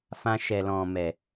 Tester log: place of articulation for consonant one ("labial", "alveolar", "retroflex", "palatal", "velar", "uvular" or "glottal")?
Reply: labial